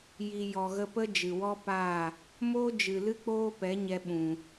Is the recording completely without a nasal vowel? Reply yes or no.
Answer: no